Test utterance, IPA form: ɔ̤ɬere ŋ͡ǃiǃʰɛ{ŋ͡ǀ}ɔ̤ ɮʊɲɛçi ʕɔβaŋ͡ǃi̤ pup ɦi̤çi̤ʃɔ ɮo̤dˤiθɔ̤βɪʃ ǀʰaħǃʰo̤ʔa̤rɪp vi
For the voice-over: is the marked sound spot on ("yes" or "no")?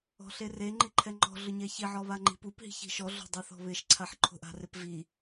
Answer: no